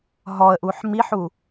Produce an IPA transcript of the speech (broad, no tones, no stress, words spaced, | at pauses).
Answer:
ɦɔə̯ʔuħ miħu